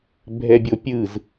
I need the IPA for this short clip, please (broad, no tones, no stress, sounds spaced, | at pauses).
bʱ ɛ bʲ o pʲ ɯ z